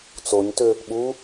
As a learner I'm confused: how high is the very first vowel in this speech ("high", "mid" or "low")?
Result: mid